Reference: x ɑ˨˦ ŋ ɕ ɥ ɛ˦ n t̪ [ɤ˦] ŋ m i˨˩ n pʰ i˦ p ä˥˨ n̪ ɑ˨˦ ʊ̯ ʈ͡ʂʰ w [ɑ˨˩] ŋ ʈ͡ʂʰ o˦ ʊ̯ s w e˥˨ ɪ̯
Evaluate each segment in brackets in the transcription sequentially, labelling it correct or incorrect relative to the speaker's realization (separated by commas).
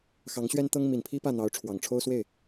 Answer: correct, correct